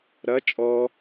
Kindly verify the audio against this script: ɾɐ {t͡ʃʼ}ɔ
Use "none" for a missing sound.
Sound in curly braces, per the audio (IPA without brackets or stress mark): t͡ʃʼ